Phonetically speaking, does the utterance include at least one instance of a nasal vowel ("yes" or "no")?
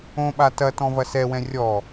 yes